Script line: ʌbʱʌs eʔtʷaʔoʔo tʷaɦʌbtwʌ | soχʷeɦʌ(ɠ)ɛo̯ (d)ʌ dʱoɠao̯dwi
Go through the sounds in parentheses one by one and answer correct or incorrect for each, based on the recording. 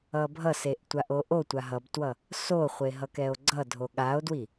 incorrect, incorrect

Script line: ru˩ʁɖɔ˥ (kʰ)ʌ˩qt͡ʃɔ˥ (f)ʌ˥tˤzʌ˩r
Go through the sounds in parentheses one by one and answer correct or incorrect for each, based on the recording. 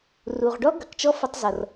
incorrect, correct

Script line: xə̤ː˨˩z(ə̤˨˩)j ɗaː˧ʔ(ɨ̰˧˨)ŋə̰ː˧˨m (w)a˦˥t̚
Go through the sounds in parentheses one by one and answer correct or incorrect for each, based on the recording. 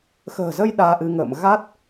incorrect, incorrect, incorrect

